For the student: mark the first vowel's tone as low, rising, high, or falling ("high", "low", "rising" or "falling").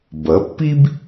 rising